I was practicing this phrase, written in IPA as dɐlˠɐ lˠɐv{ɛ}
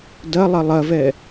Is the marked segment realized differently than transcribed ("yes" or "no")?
no